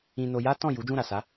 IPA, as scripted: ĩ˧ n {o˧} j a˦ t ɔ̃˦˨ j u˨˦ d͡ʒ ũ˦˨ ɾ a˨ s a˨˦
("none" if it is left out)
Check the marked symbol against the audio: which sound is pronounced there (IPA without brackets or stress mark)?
o˧